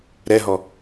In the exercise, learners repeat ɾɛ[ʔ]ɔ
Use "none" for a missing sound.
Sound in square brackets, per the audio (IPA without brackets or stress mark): ɦ